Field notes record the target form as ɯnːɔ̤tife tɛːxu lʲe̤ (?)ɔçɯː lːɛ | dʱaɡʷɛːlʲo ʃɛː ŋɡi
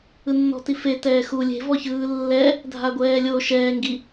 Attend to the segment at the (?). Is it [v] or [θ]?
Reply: v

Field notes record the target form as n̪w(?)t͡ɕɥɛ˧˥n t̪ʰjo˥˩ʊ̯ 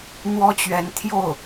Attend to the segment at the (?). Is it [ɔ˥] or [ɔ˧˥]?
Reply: ɔ˥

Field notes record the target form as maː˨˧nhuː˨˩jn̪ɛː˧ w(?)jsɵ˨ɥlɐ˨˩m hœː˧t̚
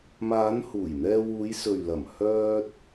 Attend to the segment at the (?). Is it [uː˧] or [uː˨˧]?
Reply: uː˨˧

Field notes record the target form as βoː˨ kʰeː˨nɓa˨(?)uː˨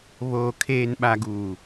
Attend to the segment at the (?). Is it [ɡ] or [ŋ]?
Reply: ɡ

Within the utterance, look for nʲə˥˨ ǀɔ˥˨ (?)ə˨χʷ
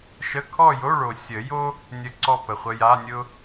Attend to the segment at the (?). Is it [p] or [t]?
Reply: p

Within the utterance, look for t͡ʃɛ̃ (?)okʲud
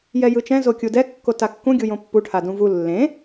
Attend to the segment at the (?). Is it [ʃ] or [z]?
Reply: z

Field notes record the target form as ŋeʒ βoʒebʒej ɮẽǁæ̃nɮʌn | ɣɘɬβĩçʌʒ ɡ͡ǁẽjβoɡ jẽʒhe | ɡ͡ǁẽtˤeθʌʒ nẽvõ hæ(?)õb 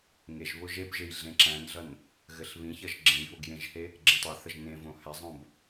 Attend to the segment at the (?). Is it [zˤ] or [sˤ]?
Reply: zˤ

